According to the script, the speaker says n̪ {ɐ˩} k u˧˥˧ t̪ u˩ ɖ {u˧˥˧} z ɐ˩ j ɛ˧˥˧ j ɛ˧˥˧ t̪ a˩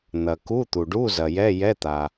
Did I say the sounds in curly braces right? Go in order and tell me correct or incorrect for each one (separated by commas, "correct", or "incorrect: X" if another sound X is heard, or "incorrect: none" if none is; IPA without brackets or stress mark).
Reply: correct, correct